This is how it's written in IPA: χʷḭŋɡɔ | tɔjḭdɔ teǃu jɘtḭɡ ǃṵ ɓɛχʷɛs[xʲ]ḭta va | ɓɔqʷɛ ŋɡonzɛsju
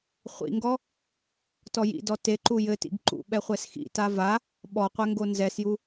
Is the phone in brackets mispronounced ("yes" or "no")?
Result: yes